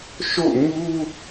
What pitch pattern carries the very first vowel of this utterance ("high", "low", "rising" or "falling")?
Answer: falling